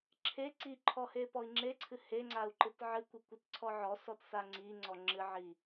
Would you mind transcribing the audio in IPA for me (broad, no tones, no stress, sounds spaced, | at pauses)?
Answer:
ǁʰ e ǀ i ǃʰ ɔ h e p ɔ i̯ ŋ͡ǁ e ǀʰ ɨ h e ŋ͡ǀ a u̯ ǃ ɨ t ʕ ɨ kʷ i kʷ ɨ t ǀʰ ɔ ʕ ɔ s ɔ t s a ŋ͡ǀ i ŋ͡ǀ ɔ ŋ͡ǁ ɨ ʕ i